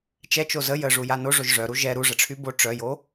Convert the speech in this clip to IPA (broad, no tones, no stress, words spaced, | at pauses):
t͡ʃɛt͡ʃo zə jəʐuja noʐoʒ ʐœɾu ʒɛ ɾuʐəʈ͡ʂʰy bo ʈ͡ʂœjo